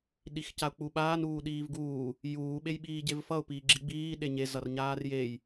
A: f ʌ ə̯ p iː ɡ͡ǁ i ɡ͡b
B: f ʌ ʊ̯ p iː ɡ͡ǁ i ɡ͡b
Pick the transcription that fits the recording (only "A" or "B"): B